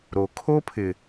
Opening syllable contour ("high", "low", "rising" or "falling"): low